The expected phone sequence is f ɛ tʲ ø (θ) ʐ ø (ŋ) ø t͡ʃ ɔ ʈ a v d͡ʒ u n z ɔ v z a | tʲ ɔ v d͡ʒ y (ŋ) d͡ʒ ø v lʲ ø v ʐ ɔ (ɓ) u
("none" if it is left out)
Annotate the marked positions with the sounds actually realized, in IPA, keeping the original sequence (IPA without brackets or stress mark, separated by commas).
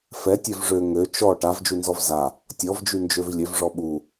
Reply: v, ŋ, n, ɓ